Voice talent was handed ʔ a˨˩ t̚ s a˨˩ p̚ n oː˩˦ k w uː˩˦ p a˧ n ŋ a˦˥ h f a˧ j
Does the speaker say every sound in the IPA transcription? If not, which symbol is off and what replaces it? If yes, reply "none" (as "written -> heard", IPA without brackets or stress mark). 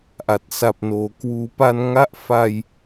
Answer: h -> ʔ